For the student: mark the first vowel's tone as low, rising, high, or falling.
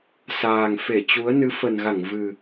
low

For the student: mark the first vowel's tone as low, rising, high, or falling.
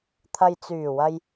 low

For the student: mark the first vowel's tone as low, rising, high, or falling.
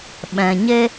low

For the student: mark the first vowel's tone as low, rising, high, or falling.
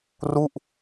falling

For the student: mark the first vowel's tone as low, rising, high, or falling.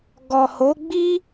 low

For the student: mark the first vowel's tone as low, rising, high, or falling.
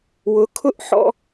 rising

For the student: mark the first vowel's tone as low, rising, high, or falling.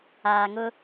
low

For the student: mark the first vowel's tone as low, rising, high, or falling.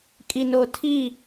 low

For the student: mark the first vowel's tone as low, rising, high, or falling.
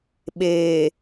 low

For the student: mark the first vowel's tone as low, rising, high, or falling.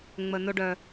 low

